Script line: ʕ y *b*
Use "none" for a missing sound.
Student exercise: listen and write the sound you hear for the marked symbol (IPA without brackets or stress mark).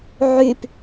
p